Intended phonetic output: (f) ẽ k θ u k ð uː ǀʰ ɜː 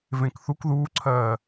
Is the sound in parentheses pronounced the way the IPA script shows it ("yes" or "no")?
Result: no